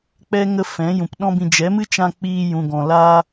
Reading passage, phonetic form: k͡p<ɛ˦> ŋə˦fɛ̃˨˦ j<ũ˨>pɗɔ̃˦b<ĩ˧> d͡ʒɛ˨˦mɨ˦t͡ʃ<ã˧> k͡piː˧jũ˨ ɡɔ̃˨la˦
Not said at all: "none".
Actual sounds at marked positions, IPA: ɛ˦, ũ˨, ĩ˧, ã˧

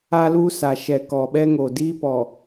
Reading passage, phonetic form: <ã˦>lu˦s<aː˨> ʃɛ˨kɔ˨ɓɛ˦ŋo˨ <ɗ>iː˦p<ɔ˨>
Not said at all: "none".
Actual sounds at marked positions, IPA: a˦, a˨, d, ɔ˨

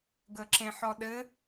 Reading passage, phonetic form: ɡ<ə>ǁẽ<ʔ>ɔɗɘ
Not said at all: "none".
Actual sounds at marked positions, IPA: ə, ħ

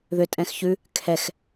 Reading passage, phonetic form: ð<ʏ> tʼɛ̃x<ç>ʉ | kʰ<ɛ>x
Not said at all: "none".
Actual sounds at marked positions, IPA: ʏ, ç, ɛ

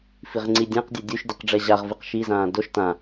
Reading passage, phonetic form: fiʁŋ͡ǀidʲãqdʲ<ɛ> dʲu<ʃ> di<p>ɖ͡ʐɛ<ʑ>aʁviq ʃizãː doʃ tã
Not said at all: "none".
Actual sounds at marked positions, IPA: ɛ, ʃ, q, ʑ

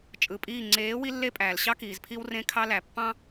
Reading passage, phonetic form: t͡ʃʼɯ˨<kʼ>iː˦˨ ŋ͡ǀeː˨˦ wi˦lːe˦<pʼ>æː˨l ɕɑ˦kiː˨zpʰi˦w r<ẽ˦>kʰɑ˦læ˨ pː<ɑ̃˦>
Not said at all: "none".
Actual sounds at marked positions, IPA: pʼ, pʼ, ẽ˦, ɑ̃˦

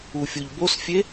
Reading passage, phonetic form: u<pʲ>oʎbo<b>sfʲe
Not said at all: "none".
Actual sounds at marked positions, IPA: fʲ, none

